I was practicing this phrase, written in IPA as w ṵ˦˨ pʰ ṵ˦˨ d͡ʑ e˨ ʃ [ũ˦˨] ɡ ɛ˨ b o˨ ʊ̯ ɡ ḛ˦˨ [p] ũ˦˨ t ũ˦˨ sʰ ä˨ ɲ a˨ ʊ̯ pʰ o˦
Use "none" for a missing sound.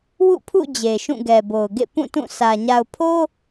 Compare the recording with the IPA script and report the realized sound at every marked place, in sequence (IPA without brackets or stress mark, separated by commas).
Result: ũ˦˨, p